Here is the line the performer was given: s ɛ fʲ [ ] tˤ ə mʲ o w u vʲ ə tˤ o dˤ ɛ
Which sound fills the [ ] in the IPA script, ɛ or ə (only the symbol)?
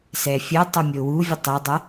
ə